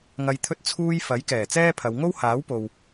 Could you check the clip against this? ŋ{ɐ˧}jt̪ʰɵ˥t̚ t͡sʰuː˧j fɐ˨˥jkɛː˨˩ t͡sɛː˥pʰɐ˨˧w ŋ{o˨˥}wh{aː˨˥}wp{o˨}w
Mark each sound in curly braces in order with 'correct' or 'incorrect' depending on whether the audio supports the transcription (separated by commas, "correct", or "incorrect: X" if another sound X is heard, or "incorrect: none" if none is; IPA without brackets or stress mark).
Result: correct, incorrect: o˥, correct, correct